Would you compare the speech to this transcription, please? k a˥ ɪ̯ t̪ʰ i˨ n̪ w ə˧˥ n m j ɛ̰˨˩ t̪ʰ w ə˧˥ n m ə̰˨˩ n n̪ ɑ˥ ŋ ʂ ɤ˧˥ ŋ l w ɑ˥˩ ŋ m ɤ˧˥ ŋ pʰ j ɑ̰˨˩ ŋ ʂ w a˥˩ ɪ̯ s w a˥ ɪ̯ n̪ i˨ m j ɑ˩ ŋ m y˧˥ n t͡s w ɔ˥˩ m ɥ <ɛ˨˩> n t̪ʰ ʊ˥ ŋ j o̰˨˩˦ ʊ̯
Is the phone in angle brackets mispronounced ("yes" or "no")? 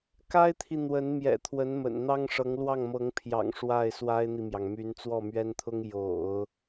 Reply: yes